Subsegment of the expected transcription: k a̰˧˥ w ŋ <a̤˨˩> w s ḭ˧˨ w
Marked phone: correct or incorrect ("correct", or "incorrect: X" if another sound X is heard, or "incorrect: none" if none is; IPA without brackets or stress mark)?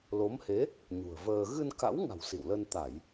correct